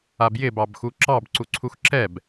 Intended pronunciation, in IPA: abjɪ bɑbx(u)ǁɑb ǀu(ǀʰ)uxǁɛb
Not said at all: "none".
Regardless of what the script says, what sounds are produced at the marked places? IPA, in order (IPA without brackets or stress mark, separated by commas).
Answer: u, ǀʰ